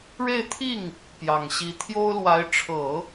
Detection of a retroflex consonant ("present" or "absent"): present